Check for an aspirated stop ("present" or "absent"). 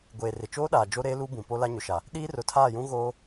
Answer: present